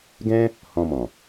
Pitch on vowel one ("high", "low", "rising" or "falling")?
high